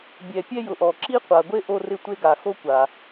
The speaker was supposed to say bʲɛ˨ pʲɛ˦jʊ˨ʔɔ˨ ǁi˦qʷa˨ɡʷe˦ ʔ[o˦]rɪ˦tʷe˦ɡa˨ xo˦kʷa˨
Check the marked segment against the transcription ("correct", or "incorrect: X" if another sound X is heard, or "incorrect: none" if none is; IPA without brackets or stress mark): correct